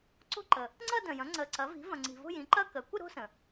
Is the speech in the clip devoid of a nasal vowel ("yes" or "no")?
no